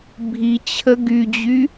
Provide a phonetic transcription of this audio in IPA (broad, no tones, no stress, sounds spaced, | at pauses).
bʱ i t͡ɕʰ ə ɡ y d͡ʑ y